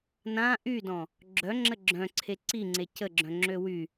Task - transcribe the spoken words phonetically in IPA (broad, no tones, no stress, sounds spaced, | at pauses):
n ã ʔ y d ɔ̃ | ɡ͡ǁ œ ŋ͡ǁ ə ɡ͡ǁ œ̃ ǀʰ e ǀ i ŋ͡ǀ e c ə ɡ͡ǁ œ̃ ŋ͡ǁ ø w y